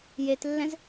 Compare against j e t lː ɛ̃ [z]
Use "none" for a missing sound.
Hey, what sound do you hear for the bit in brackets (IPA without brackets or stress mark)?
z